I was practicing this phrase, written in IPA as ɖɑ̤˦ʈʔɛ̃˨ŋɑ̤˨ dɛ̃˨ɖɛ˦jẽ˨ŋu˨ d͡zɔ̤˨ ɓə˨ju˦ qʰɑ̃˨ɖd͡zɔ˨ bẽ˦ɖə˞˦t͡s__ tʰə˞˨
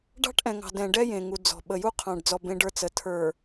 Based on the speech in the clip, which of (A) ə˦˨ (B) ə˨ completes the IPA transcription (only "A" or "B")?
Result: B